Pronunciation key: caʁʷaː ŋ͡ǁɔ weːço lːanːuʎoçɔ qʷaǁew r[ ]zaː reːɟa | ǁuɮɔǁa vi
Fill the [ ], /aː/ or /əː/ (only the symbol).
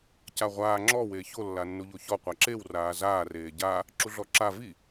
aː